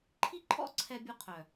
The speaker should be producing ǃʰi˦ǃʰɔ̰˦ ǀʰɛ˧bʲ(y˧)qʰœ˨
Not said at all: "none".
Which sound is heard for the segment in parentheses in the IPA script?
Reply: u˧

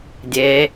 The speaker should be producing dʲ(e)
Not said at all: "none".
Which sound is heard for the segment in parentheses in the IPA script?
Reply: e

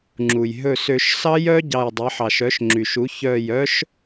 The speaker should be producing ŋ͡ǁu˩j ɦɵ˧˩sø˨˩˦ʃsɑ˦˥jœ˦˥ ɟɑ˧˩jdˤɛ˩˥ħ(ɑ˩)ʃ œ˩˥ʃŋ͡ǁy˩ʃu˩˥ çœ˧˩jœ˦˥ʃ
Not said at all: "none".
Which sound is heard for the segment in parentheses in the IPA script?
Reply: ɑ˩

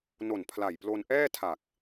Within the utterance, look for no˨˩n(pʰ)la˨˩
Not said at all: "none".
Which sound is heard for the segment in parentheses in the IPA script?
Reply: pʰ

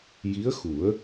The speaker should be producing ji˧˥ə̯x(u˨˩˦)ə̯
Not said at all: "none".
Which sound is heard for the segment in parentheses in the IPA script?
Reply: u˨˩˦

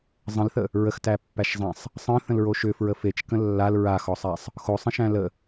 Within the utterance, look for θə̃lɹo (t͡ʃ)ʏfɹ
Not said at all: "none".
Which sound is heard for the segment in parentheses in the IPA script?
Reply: ʃ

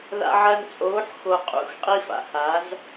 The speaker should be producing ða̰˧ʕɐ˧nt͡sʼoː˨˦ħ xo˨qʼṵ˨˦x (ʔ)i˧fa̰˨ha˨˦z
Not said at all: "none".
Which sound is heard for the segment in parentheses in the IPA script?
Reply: qʼ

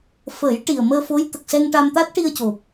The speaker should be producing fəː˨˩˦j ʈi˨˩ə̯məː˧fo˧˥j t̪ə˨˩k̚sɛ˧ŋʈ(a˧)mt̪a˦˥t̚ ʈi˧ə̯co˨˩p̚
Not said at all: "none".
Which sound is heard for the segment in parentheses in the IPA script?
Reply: a˧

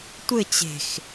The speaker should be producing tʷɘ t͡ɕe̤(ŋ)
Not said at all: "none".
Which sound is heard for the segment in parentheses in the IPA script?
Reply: x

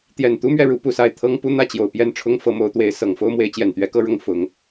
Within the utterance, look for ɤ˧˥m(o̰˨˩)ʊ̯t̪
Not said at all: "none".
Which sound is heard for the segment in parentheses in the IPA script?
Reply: o˧˥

